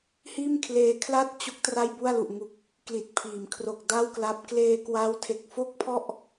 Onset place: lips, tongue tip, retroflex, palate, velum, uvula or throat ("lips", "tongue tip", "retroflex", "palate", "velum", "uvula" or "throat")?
throat